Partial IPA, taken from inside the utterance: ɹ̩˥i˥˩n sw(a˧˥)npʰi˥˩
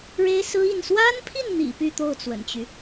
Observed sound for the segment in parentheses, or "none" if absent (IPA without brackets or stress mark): a˥